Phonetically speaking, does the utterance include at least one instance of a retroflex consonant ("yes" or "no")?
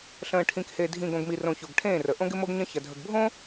yes